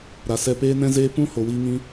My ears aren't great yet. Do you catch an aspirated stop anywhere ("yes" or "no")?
no